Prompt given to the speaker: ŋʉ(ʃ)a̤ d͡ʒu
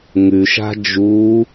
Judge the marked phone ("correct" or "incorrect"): correct